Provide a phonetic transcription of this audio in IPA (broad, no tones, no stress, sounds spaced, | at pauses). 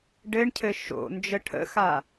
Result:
ɖ ɘ ɳ cʰ ɘ ʃ o̰ n d͡ʒ ə ʈʰ ə̰ x a